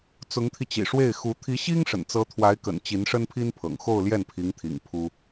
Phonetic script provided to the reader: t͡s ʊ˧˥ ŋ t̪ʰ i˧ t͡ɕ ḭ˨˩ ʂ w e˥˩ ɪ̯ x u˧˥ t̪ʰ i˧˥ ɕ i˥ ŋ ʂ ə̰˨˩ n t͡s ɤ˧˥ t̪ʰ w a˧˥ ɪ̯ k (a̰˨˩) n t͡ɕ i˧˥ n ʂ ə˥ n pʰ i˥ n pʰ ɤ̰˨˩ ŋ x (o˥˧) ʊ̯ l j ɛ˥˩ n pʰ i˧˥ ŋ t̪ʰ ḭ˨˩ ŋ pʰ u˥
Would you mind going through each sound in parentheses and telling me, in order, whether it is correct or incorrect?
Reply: incorrect, correct

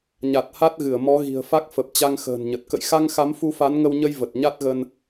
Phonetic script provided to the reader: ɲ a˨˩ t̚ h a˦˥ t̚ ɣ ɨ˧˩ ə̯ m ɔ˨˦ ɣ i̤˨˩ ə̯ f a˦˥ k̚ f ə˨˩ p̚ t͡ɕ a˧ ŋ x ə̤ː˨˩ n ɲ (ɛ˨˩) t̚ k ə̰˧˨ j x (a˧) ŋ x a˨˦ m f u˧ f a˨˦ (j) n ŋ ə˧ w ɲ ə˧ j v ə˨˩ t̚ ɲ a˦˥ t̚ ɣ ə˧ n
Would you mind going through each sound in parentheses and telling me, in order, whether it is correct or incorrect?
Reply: incorrect, correct, incorrect

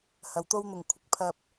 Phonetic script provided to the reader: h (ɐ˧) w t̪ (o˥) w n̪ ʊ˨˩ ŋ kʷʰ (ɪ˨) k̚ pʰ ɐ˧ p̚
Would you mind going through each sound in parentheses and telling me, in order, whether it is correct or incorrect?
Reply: incorrect, correct, correct

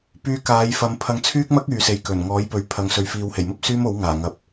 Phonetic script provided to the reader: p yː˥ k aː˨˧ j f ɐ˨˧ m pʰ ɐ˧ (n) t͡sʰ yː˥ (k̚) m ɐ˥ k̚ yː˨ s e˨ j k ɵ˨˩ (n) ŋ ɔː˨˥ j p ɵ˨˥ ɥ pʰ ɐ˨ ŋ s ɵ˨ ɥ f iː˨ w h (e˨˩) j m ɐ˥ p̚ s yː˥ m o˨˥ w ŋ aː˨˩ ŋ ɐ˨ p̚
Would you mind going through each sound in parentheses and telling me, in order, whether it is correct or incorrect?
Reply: incorrect, correct, correct, correct

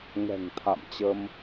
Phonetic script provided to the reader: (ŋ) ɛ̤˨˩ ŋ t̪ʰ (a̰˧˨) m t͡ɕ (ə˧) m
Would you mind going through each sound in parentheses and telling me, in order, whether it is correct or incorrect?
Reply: correct, correct, correct

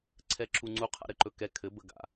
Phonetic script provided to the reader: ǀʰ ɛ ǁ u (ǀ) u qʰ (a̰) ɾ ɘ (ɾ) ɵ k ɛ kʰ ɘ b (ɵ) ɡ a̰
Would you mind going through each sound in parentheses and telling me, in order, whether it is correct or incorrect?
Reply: incorrect, correct, incorrect, incorrect

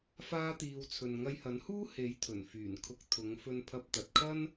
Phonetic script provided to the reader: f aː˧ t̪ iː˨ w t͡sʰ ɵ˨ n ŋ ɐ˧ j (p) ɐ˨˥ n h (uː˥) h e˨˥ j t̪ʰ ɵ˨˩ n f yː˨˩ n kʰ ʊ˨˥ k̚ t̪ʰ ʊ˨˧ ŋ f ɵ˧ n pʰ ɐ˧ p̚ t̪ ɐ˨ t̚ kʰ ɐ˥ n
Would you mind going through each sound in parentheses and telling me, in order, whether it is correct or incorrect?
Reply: incorrect, correct

